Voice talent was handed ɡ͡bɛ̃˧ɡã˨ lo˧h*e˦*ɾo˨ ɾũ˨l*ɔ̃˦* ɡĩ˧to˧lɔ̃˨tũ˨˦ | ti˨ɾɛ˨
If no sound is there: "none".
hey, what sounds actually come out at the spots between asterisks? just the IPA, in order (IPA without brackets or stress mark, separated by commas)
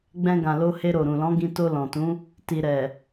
e˧, ɔ̃˨˦